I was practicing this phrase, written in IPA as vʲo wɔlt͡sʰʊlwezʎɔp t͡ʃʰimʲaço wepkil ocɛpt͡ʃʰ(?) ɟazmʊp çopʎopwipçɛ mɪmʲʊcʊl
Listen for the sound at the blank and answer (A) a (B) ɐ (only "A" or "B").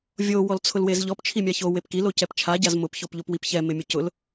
A